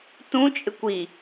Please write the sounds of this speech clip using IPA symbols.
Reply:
t ũ t͡ʃʼ ɪ kʷ i

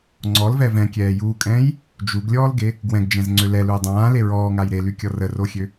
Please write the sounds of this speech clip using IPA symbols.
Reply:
ŋ͡ǀ ɔ l v ɛ v ɛ̃ kʲ ɛː j uː kʼ ɛ̃ː j | d͡ʒ u ɡ lʲ ɔː l ɡ e | ɡ w ɛ̃ ɡ d͡ʒ ɛ̃ z ŋ͡ǀ ø l ɛ l u j dˤ ãː l e ɹ ɔː ŋ a j ɾ e l y kʲ ɔ r ə r o xʲ ø

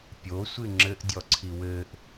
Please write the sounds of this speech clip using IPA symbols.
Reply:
pʲ o sʷ ɨ ŋ͡ǁ ɘ ʔ dʲ ɔ ǀʰ i w ɘː ʔ

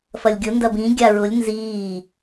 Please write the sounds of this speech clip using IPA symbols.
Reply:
f ɐ lʲ ɡʲ ʊ n d ɐ b ĩ ɡʲ a ɹ ʊ lʲ n z iː

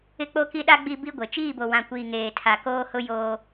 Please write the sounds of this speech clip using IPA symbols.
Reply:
ɪ˦ k͡p o˦ k i˦ ɗ a˦ ɡ͡b i˦ b i˦ ɡʷ e˨ t͡ʃ iː˦˨ b o˨ w ã˨ kʷ iː˨ ŋ eː˨ tʰ a˨ k oː˦ h ʊ˦ j oː˦

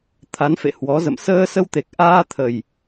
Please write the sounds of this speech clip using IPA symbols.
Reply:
t̪ʰ a˨˦ n f ḛ˧˨ h w ɔ˨˦ z ə̰˧˨ m s əː˧ s ə˧ w t̪ e˨˩ k̚ ʔ aː˧ t̪ʰ ə˨˩ j

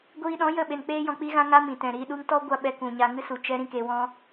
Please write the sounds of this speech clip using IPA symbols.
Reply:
ɡʷ iː˧ ɗ ɔ̃˨˦ j ə˦˨ ɓ e˨ n k͡p eː˧ j ɔ̃˨ k͡p i˧ ɣ ã˧ ŋ a˦ m ĩ˨ t ɛ̃˨ ɾ iː˧ ɗ u˦ ŋ t ɔ˦ ɡʷ a˦ ɓ ɛ˧ k ũ˨ ɲ a˧ ŋ ɨ˦ s u˨ t͡ʃ ɛ˦ ɾ ĩ˦ k e˧ w ɔ̃˦

